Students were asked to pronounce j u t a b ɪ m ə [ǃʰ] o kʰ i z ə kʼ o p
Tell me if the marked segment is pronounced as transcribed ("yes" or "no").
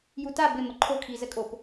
yes